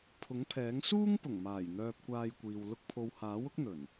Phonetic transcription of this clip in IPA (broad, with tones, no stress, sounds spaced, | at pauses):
pʰ ʊ˨˥ ŋ pʰ ɛː˨˥ ŋ s uː˥ ŋ p ʊ˨˩ ŋ m aː˨˩ j n̪ œː˧ p̚ kʷ aː˧ j kʷ iː˨ w l ʊ˧ k̚ pʰ o˨ w h aː˨˥ w ʊ˥ k̚ n̪ ɵ˨˩ n